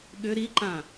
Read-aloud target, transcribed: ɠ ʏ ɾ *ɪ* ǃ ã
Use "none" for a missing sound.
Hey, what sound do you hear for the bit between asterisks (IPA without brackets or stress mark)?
i